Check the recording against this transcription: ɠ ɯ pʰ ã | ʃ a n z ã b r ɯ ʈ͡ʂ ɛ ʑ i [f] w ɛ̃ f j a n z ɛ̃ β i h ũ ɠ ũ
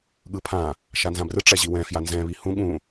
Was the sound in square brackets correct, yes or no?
no